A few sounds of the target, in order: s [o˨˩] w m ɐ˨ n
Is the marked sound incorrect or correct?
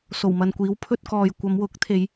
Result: correct